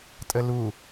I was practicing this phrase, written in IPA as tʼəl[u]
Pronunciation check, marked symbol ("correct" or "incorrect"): correct